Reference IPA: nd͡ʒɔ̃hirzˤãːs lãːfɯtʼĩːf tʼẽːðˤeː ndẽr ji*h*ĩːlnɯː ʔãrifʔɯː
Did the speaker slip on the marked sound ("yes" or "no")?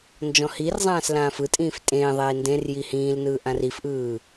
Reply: no